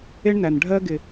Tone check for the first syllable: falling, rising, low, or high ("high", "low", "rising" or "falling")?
high